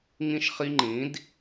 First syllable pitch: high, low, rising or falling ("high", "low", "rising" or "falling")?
falling